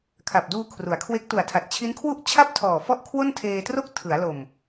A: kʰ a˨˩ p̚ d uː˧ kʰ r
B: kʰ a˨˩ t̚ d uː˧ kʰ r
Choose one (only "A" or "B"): A